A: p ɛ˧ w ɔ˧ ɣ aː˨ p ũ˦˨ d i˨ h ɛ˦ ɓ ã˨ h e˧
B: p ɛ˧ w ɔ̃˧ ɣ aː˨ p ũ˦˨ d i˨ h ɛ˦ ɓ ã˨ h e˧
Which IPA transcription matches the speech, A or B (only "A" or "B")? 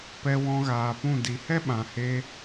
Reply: B